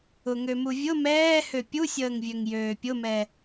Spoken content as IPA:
ʊ ŋ ø m u vʲ ʊ m ɛː h ø pʲ u sʲ əː ŋ vʲ ø ŋ j øː pʲ ʊ m ɛ

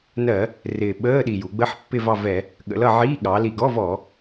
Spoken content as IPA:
n ɜ˧˩˧ | r ɪː˨˩ ɓ əː˧˥˧ ɗ i˨˩ j u˩˧ ɡ͡b ə˧˥˧ ħ pː ɪ˦˨ v ɑ˦˨ v ɛ˧˩˧ | ɠ ə̰˩˧ l ʌ˦˨ ʕ iː˧˥˧ ɠ ɑ˩˧ l i˨˩ ɡ ɔ˧˥˧ v ɔ˧˩˧

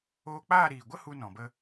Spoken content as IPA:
oː˧ k͡p aː˦˨ ɾ iː˨ ɡʷ ə˦ h u˧ n ɔ̃˨ b ə˧

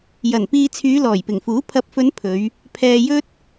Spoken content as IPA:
j ɐ˨˩ n p iː˧ t͡sʰ yː˨˧ l ɔː˨˩ j p ɪ˨˩ ŋ f uː˨˥ pʰ ɐ˨˥ p̚ f ɵ˨˧ n pʰ ɵ˨˧ ɥ | pʰ ɛː˨ j ɵ˥ t̚

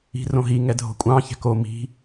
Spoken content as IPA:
i̤ r õ ɦ i ŋ ɛ dʱ o̤ kʷʼ ɑ̃ ç ɛ̤ k o m i̤

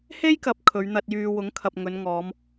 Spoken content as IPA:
h e˥ j k ɐ˨ p̚ kʰ ɵ˨˧ ɥ n̪ ɐ˧ t̚ j yː˧ w ʊ˨˥ ŋ kʰ ɐ˨ p̚ ŋ ɵ˨˧ n ŋ ɔː˨˧ m

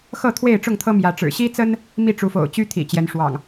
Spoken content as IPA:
x ɤ˥˨ t̪ʰ w e˥˨ ɪ̯ ʈ͡ʂ ʊ˥˨ ŋ t̪ʰ ɤ˦ m j ä˨˦ ʈ͡ʂ ɻ̩˨˩ ɕ i˦ t͡s ə˦ n | m i˥˨ ʈ͡ʂ u˨˦ f o̰˨˩ ʊ̯ t͡ɕ y˦ t̪ʰ ḭ˨˩ t͡ɕ j ɛ˨˦ n ʂ w ɑ̰˨˩ ŋ

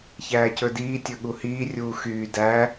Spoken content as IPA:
ç æː c ɵ d iː tʲ ɵ ɠ u h iː rʲ uː x yː d æ

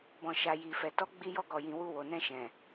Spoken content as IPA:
b ɔ̃˨ ʃ a˨ j i˨ f ɛ˨ t ɔ˨˦ ɡ͡b i˧ j ɔ˧ ɡ ɔ˨ j ĩ˨ w u˧ w o˨ n ɛ̃˧ ʃ ɛ̃˨

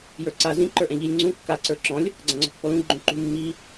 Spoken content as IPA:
j ə˞ ǀ a z ĩ ǃ ə˞ ʔ ɛ̃ ʎ i lʲ ŋ͡ǀ ũ kː a ǀ ə˞ ǁ ɔ̃ lʲ | ɡ͡ǀ ã ŋ͡ǀ ɔ̤ pː ɔ l ũ ɡ͡ǃ õ ǃ ṳ mː i

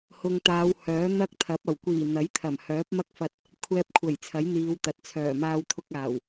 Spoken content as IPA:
h ʊ˨ ŋ t̪ aː˨˧ w h œː˨˥ n̪ ɐ˥ k̚ t̪ʰ ɐ˨˥ p̚ ɐ˨˩ w kʷ iː˨˩ n̪ ɐ˨˥ j t̪ʰ ɐ˨˩ m h œː˨˥ p̚ m ɐ˥ k̚ f ɐ˧ t̚ | kʷʰ ɛː˧ p̚ kʷʰ ɐ˨˩ j t͡sʰ ɐ˨˥ j n̪ iː˨˧ w t̪ ɐ˨ t̚ t͡sʰ œː˨˩ m aː˧ w t̪ʰ ʊ˧ k̚ aː˨˩ w

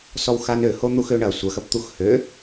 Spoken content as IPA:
s ɔ w x a n ø h o n̪ u x ø ɳ ɐ sʷ ɐ x ɐ p t̪ u x h ø

